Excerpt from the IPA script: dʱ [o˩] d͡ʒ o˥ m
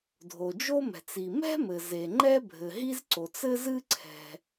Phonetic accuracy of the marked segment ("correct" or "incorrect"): correct